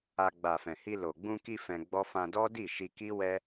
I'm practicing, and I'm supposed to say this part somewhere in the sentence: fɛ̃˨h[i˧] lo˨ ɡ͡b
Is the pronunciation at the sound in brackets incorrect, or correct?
correct